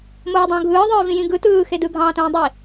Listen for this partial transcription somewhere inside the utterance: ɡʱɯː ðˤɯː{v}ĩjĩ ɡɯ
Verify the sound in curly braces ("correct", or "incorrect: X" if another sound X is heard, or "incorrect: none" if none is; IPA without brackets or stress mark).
correct